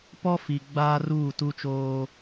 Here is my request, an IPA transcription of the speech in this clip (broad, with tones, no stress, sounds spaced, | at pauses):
p ɔ˦ f i˨ ɡ͡b aː˦ r uː˦˨ t u˦ t͡ʃ oː˦